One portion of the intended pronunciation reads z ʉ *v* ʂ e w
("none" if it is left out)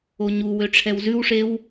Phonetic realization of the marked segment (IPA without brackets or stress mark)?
w